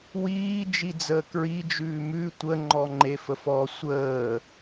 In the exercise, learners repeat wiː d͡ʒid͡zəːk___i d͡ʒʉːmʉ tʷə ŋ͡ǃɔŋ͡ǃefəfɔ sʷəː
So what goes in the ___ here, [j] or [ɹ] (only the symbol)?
ɹ